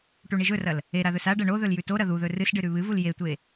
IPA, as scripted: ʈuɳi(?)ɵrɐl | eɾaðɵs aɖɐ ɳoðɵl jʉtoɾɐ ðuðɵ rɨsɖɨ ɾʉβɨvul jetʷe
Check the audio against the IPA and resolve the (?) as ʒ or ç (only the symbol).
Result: ʒ